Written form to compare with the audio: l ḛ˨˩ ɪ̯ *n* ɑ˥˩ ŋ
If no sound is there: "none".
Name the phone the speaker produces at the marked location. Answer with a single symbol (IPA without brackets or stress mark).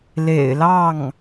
l